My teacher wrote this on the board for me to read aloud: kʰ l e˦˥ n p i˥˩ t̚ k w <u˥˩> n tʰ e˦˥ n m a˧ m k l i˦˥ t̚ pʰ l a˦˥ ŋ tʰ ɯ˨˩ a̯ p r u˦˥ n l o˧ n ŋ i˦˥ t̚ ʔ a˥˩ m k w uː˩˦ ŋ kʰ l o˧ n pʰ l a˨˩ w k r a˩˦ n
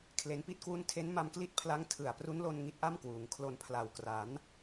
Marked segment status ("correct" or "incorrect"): correct